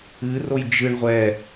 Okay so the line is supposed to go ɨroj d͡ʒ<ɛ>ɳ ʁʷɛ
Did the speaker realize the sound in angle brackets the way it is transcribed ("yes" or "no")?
no